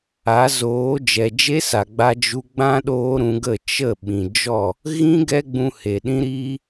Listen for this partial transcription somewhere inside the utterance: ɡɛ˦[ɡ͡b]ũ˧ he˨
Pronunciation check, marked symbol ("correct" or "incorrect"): correct